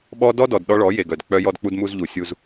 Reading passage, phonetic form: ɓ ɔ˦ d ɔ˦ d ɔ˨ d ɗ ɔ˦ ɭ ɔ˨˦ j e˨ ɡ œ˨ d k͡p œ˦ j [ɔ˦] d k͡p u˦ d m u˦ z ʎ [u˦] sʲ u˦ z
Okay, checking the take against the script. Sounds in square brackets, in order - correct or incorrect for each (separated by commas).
correct, incorrect